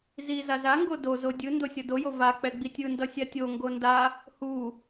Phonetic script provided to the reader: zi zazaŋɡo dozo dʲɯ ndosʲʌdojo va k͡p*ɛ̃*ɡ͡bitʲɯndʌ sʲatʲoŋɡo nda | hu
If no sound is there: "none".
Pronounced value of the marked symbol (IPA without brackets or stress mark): ɛ